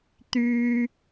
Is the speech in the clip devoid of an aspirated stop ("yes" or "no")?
yes